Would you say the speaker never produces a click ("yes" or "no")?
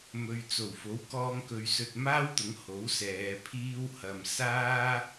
yes